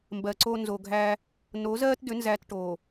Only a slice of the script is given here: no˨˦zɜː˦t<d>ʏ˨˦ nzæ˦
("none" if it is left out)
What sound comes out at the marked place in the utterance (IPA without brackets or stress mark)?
d